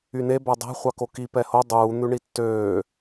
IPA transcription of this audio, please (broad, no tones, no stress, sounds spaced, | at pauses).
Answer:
y n e b æ dˤ æ̤ χʷ ɑ k o k i p ɛ h o dˤ uː n̪ ʉ ɳ i tː øː